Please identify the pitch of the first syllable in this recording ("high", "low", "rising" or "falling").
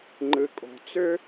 low